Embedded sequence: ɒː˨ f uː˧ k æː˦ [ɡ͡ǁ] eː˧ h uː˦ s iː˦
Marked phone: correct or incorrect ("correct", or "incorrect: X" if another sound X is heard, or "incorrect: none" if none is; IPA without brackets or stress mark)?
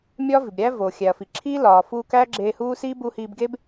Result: correct